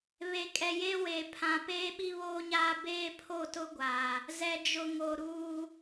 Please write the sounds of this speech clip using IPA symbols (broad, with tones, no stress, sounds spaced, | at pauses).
β e˨ kʼ ɛ˨ j e˦ w eː˨ pʰ ã˨ p eː˦ ɓ i˦ β oː˦ ɲ aː˦ b eː˦ pʰ o˦˨ t ʊ˦ ɡʷ a˨ | z ɛ˨ d͡ʒ ʊ˨ ŋ o˨ ɾ uː˦